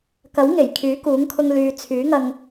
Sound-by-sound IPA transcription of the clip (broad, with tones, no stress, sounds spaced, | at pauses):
k ɐ˨˥ w ŋ e˨˩ j kʰ yː˨˥ k uː˨˥ ŋ kʰ ʊ˧ ŋ l yː˨ t͡sʰ yː˨˥ ŋ ɐ˧ ŋ